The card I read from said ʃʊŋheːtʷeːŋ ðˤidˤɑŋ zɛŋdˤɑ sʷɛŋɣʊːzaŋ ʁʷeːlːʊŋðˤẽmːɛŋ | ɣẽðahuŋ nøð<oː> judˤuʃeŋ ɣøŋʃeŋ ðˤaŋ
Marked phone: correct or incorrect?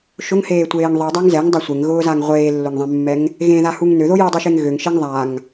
incorrect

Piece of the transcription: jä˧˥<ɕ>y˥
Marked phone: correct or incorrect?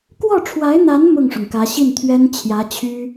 incorrect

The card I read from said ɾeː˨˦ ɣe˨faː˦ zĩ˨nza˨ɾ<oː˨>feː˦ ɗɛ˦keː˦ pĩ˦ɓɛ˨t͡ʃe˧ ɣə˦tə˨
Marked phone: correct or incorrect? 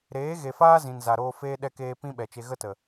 incorrect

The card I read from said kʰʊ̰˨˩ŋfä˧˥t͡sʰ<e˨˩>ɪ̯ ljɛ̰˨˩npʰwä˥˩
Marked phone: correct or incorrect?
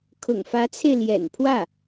incorrect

